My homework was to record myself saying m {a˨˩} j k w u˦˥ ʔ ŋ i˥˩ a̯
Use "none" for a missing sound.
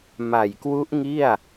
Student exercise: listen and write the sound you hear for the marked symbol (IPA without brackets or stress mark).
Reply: a˨˩